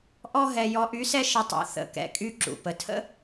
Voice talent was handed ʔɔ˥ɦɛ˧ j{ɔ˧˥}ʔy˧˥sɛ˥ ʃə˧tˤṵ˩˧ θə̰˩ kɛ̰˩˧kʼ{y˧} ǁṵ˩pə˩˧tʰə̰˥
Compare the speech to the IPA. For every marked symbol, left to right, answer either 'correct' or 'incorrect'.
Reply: correct, correct

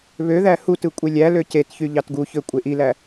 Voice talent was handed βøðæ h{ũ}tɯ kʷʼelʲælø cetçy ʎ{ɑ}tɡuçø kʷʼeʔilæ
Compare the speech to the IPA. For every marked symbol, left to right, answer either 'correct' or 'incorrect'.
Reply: incorrect, correct

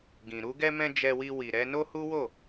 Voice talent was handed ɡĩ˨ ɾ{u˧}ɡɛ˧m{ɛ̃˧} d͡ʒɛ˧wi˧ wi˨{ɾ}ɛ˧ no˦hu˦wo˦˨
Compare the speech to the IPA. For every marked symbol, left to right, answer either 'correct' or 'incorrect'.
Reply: correct, correct, correct

